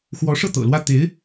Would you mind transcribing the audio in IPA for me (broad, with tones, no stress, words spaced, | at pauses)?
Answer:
xwɔ˧˥ʂɤ˥˩t̪ɤ̰˨˩ lwä˥˩ t̪e˧˥ɪ̯